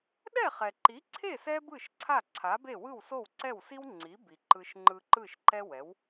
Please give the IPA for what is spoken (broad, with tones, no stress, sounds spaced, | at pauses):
ɗ ɛ˥˩ χ ɛ˩ ǃ i˩˥ ǀʰ e˥˩ s ɛ˥ b ɯ˥˩ ʃ ǀʰ a˥˩ ǀʰ a˩˥ b e˥˩ w ɯ˥˩ w s o˥˩ w ǀ ɛ˥˩ w s i˥ w ŋ͡ǀ i˩˥ b i˩ ǃ ɯ˧ ʃ ŋ͡ǃ ɯ˧ ǃ ɯ˥˩ ʃ ǃ ɛ˥ w ɛ˩˥ w